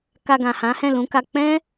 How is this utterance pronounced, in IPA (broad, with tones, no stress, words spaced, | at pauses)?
ka˧ɡã˨hã˨˦hɛ̃˦˨ lũ˨˦ka˧ k͡pɛ̃˦